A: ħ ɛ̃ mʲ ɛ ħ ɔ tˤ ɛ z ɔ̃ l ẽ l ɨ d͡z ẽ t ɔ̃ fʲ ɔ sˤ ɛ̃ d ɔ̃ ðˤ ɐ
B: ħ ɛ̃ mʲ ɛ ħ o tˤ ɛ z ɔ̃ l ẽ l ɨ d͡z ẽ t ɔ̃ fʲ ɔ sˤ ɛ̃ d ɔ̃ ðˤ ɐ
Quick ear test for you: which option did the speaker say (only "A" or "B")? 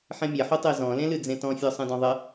B